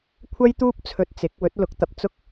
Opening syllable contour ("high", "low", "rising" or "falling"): high